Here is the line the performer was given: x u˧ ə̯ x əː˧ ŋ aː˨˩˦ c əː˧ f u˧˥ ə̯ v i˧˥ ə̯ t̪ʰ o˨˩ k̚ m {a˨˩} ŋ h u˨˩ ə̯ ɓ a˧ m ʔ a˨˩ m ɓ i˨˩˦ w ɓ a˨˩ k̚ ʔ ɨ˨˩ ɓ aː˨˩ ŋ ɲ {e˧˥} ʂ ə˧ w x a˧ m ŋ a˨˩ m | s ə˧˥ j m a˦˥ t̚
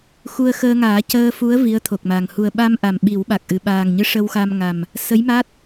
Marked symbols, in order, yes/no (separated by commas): yes, no